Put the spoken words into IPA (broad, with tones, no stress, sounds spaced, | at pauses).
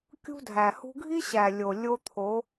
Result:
kʲ ṳ˦ dʱ æ˨ h ṳ˦ ɡʱ i˦ ɕ æ˨ lʲ o˨ lʲ o˦ t̪ʰ o˨˦